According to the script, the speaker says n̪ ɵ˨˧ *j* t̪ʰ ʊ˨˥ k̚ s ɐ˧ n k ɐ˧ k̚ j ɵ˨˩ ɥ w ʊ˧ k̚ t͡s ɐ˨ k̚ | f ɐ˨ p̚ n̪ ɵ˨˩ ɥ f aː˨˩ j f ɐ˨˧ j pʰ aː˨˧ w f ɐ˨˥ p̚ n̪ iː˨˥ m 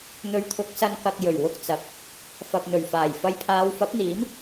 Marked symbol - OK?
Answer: no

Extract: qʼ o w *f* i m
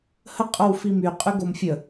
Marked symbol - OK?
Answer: yes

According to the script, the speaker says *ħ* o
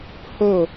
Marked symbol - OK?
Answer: no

